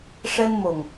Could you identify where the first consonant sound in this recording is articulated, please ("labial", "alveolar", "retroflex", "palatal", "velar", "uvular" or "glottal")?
retroflex